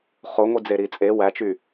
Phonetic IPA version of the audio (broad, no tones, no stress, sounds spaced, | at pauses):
χ o ŋʷ i d͡z e ɾ i t͡sʼ e w æ t͡ʃ y